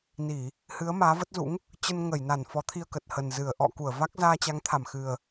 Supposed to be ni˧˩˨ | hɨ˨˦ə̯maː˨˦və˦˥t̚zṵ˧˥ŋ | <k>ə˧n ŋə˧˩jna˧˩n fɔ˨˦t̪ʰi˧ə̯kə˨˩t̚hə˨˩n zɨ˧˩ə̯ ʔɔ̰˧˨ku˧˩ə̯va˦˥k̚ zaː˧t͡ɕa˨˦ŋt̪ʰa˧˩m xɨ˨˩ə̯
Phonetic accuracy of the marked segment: incorrect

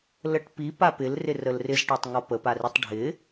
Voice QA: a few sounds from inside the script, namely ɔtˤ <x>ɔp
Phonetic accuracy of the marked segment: incorrect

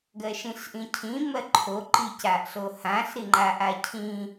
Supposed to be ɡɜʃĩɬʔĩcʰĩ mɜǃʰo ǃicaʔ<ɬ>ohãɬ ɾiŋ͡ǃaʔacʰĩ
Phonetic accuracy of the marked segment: correct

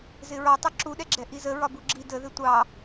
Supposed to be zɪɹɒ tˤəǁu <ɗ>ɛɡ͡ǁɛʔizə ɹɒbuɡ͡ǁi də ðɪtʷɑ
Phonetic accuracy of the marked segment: correct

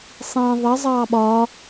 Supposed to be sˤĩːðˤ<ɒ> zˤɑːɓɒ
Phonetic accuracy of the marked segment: incorrect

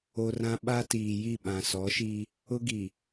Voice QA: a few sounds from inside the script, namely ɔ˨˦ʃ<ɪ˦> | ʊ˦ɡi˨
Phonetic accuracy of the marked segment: incorrect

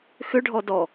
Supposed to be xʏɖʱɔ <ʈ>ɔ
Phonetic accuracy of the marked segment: incorrect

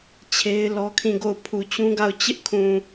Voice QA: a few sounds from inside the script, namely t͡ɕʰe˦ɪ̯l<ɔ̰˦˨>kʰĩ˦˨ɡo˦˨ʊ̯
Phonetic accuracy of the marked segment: incorrect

